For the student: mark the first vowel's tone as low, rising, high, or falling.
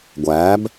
rising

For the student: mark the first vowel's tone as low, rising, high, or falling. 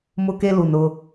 high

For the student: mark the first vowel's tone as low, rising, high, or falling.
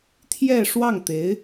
falling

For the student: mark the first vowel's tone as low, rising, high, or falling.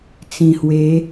low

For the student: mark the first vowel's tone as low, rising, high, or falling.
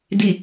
low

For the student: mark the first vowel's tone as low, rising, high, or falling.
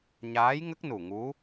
rising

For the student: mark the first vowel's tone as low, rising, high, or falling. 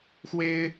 high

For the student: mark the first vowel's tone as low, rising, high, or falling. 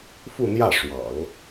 falling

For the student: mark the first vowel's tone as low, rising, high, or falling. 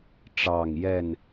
low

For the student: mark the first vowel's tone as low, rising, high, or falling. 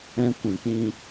high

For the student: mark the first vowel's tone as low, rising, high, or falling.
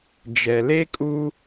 low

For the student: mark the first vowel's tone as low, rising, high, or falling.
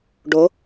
rising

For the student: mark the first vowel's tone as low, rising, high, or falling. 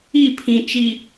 falling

